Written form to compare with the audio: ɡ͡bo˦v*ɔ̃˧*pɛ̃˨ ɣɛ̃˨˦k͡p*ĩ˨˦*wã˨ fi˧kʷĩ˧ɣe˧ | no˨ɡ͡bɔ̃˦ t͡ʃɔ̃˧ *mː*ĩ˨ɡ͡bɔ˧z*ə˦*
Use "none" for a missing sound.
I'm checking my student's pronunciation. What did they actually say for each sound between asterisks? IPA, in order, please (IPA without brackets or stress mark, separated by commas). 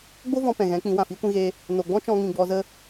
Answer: ɔ̃˧, ĩ˨˦, ŋ, ə˦